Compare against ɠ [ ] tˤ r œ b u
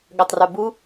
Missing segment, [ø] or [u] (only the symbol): ø